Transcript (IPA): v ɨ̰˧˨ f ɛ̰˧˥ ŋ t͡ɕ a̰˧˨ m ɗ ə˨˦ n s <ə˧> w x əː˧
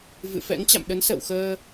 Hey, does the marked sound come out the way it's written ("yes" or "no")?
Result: no